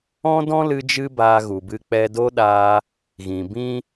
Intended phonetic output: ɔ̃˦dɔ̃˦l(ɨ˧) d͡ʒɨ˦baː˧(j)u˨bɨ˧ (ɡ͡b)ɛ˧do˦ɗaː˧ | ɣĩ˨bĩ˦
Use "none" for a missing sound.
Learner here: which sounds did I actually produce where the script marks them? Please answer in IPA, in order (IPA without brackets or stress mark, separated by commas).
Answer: ɨ˧, ɣ, k͡p